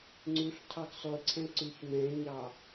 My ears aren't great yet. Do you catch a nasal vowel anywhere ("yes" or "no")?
yes